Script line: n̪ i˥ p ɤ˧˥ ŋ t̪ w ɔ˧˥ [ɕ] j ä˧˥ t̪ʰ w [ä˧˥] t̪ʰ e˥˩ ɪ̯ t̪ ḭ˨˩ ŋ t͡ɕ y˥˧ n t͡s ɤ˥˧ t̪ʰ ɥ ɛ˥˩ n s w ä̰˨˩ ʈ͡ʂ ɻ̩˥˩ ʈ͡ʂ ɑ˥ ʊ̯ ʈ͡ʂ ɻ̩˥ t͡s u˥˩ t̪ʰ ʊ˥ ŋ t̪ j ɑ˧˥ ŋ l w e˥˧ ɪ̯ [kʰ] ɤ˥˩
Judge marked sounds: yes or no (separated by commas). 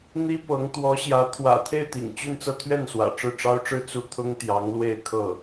yes, no, yes